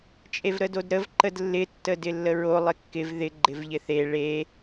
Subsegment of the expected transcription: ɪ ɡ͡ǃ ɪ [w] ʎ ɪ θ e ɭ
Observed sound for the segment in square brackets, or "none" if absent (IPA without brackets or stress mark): v